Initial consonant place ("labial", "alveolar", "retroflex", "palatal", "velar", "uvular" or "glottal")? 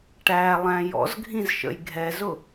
retroflex